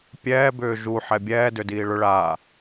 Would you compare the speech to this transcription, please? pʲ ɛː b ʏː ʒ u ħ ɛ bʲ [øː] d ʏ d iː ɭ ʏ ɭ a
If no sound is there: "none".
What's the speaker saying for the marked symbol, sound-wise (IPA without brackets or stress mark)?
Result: ɛː